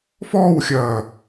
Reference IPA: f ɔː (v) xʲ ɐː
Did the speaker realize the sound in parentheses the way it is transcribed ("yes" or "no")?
no